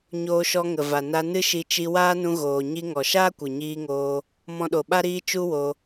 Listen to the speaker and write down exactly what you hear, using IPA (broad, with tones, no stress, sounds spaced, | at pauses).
ɲ oː˧ ʃ ɔ˧ ŋ ə˨ v a˨ n a˧ n ɨ˦ ʃ i˧ t͡ʃ i˧ w aː˦ n ũ˧ ɣ oː˨ ɲ i˧ ŋ ɔ˨ ʃ aː˦ kʷ ɨ˨ ɲ iː˧ ŋ oː˧ | m ɔ̃˧ ɗ o˨ ɓ a˦ ɾ iː˧ t͡ʃ u˦ w o˧